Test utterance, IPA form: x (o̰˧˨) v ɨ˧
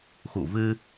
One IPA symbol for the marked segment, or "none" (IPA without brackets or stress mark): ṵ˧˨